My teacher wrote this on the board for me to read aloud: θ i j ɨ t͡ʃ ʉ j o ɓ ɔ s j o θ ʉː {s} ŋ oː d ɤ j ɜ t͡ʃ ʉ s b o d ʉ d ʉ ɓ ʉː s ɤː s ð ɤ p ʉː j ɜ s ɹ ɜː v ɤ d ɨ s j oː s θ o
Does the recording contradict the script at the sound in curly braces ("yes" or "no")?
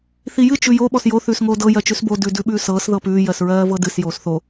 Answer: no